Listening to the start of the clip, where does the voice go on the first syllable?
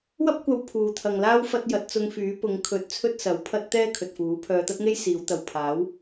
high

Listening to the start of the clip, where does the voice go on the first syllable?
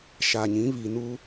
low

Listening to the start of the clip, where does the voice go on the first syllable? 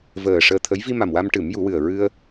low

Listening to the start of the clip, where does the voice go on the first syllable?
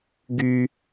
high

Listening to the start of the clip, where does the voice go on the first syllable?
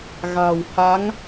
low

